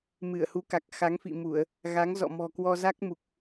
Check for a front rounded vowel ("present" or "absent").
absent